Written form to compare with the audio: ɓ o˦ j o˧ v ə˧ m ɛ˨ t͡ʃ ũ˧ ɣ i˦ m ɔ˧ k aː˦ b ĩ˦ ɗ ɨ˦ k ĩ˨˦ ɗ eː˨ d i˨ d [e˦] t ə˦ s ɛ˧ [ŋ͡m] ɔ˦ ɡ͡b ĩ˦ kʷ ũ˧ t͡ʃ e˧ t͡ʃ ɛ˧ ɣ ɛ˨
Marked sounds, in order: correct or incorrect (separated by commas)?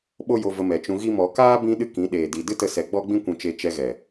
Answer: incorrect, incorrect